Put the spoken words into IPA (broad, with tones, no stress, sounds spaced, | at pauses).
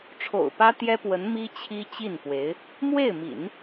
ʈ͡ʂʰ o̰˨˩ ʊ̯ p ä˥ t̪ j ɛ˥ p w ə˧˥ n m i˥ t͡ɕʰ i˥ t͡ɕ i˥˩ n p w e˧˥ ɪ̯ | m w e˥˩ ɪ̯ m ḭ˨˩˦ n